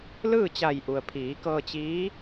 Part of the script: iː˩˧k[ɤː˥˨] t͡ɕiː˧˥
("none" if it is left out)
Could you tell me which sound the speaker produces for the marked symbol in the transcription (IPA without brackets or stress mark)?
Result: ɤː˧